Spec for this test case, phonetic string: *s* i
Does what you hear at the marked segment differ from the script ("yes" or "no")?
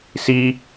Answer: no